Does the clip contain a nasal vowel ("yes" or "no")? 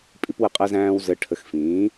yes